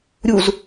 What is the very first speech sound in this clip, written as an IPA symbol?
ɾʲ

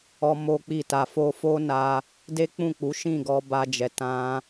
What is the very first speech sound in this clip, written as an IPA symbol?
ɔ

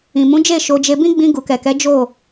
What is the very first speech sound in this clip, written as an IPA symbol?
ĩ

